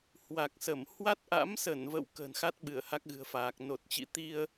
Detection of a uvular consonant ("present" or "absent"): absent